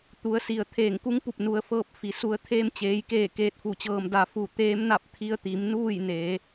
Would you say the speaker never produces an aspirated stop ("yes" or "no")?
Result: no